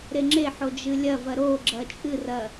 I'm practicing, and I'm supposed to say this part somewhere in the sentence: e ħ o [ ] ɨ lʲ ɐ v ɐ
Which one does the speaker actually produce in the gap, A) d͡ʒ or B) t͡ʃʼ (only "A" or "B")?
A